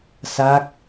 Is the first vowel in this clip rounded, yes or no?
no